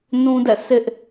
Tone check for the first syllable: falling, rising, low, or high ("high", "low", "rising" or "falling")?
high